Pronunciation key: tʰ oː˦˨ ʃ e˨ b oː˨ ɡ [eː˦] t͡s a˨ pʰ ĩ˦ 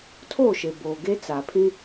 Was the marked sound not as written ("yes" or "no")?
yes